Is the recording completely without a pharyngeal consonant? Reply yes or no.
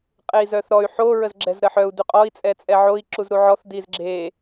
no